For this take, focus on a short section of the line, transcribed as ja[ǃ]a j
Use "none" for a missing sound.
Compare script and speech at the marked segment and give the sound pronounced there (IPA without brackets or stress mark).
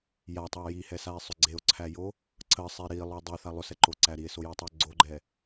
tˤ